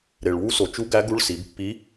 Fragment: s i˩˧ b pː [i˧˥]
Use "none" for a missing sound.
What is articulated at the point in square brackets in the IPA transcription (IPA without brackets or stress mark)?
i˧˥